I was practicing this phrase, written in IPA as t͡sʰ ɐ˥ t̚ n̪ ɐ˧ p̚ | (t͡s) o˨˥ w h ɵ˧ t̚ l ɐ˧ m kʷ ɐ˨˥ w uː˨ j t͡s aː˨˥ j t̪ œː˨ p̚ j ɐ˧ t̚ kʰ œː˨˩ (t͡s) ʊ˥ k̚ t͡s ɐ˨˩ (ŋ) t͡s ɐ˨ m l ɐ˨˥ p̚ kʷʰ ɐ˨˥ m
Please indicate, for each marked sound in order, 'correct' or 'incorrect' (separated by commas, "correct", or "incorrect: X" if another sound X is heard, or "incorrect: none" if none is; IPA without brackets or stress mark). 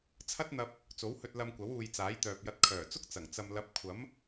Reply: correct, correct, correct